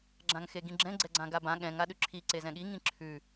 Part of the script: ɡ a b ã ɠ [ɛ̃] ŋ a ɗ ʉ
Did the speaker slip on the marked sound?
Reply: no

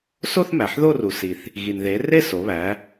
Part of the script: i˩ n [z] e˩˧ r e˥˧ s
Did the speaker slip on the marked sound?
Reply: yes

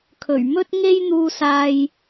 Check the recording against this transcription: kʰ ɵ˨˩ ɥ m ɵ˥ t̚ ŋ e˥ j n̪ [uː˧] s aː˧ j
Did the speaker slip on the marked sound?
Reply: no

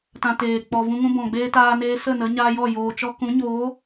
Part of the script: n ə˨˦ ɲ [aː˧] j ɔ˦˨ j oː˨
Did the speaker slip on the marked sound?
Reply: no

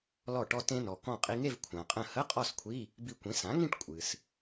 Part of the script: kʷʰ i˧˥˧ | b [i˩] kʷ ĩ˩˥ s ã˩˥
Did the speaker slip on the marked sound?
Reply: yes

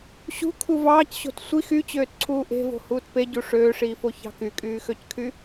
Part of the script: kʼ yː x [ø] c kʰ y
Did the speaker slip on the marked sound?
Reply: no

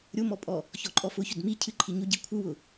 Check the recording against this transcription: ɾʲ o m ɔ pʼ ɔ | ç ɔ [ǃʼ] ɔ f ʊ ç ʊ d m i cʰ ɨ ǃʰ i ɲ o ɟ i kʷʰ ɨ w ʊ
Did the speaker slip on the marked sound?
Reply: no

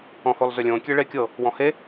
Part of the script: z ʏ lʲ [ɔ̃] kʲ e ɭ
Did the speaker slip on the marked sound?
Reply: yes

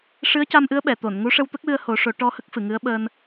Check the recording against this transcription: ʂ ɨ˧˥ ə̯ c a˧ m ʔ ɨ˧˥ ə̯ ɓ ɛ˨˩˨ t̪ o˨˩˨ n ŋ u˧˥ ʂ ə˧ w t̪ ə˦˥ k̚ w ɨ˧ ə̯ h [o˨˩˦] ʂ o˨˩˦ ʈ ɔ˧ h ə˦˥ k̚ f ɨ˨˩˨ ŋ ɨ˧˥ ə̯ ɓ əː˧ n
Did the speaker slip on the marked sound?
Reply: no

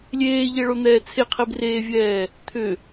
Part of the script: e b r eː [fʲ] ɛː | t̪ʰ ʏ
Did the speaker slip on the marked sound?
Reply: yes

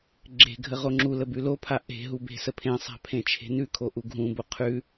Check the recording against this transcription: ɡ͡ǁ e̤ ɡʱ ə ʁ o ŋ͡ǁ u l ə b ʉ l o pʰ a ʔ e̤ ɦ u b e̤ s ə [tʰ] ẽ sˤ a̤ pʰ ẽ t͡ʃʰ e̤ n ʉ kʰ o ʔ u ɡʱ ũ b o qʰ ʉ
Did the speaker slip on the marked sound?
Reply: yes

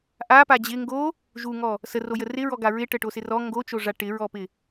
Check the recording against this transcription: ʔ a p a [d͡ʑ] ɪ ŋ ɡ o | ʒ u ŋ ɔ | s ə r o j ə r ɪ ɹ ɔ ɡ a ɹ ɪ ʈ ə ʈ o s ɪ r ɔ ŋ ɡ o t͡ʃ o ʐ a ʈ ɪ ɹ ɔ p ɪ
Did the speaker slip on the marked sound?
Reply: no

